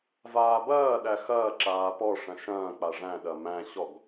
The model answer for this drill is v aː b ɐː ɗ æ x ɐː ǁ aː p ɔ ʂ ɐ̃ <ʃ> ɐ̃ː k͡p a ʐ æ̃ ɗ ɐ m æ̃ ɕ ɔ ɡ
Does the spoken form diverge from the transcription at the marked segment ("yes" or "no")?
no